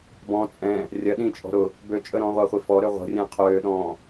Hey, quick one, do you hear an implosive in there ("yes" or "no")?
yes